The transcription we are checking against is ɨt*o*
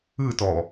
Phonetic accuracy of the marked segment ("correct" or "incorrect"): incorrect